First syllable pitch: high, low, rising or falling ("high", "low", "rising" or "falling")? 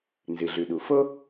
low